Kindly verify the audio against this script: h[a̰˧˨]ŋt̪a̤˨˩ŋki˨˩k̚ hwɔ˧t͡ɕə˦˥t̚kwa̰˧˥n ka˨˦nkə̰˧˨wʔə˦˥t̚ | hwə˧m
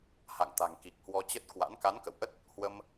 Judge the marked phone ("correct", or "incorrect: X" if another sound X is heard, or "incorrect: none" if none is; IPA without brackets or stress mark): correct